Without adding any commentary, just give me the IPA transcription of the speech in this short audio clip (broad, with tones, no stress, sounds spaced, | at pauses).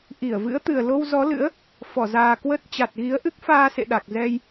ʔ i˧˩ ə̯ v ɨ̰˧˥ ə̯ t̪ ɨ˨˩ ə̯ l o˧ w z ɔ˨˦ l ɨ̰˧˥ ə̯ | f ɔ˧˩ z aː˨˩ k w ə˦˥ t̚ t͡ɕ a˨˩ t̚ ɣ i˨˦ ə̯ ʔ ɨ˦˥ k̚ f aː˧ s ḛ˧˨ ɗ a˨˩ k̚ z ɛ˧ j